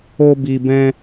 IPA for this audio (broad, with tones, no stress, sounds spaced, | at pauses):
o˧ b i˨ b ɛ̃˧